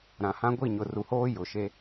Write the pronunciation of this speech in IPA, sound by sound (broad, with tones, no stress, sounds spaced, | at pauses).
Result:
ɾ ã˨ h ã˦ ɡʷ i˦˨ ɲ ʊ˨ r u˨ h oː˦ j ʊ˨ ʃ e˦